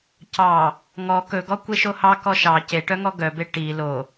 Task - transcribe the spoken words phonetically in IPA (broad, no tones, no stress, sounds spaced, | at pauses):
c ɑ | ŋ ɔ k ɵ ɡ ɔ kʷ e ʃ o h ɑ k ɔ ʃ ɑ c e ʈ œ ŋ ɔ ɡ œ b e ʈ i l o